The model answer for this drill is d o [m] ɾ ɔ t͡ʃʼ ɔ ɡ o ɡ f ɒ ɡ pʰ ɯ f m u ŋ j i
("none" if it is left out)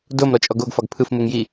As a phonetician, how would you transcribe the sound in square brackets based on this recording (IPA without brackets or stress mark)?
m